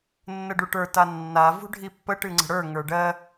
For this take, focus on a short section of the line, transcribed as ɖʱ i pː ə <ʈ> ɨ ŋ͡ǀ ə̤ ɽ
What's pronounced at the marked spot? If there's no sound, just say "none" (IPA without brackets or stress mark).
ʈ